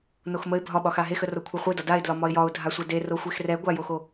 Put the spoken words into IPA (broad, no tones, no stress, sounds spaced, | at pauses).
n o x m ə ɪ̯ bʱ ɒ ɓ ɒ x a ɦ e x ə r o kʷʰ a χʷ ə ɪ̯ d ɒ d a ɪ̯ d l ɒ m ɒ ɪ̯ j ɒ ʊ̯ dʱ a sʷ ɛ d e r o xʷ e x r ɛ ɡʷ a j o x o